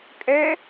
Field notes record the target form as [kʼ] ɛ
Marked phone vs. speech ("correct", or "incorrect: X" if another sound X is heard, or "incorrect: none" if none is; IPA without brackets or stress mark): correct